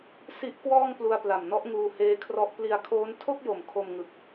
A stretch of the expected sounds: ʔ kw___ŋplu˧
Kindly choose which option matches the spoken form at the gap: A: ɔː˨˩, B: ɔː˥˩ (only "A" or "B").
B